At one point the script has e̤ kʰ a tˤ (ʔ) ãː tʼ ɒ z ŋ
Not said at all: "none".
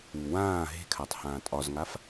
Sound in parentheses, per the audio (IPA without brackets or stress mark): h